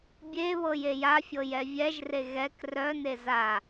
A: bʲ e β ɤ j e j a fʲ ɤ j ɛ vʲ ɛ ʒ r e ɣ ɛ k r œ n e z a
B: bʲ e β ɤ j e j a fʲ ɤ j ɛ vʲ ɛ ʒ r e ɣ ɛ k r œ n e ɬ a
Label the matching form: A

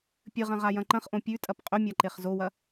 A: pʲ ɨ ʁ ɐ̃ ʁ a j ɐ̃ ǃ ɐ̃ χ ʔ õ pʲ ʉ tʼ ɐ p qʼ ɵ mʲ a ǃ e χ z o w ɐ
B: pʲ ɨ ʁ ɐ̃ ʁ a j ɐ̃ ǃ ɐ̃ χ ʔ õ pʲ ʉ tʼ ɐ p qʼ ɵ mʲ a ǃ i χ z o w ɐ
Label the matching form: A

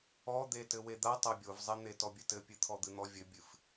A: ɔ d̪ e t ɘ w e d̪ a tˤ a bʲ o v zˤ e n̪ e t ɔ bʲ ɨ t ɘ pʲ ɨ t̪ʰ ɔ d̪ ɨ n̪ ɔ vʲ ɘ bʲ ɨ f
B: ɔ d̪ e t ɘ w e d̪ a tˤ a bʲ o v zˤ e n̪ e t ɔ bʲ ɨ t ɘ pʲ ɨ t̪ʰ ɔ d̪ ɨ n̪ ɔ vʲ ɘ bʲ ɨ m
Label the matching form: A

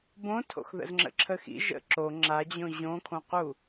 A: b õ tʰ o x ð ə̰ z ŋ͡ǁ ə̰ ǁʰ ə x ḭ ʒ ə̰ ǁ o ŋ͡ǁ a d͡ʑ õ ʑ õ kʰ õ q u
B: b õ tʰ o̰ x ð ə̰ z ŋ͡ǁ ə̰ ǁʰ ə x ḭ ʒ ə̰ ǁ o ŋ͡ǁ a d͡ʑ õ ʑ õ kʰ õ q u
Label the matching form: B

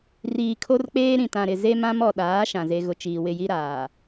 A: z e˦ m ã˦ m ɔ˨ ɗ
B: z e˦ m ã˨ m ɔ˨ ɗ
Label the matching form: A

